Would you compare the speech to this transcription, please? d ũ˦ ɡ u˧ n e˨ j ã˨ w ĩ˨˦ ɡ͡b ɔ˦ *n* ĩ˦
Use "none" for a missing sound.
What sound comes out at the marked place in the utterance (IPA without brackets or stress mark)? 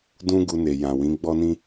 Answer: n